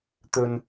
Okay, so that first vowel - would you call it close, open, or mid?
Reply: mid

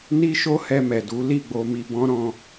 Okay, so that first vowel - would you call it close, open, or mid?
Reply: close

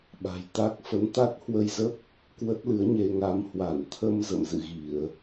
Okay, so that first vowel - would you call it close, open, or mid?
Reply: open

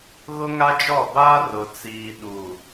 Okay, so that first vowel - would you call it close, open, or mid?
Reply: close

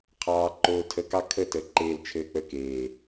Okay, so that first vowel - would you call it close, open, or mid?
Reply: open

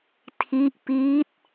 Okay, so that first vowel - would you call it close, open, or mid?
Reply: close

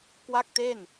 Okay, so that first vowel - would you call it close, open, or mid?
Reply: open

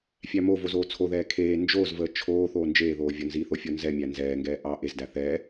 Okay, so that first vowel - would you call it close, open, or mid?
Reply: open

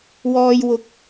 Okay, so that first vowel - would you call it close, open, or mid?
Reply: mid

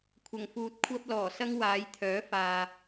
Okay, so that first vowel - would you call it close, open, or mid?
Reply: open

